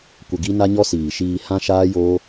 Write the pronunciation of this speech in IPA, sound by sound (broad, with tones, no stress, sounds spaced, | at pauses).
kʷ ə˧ ɡ i˦ n a˦ ɲ ɔ˦ s iː˨ ʃ iː˧ h ã˦ ʃ aː˦ j oː˦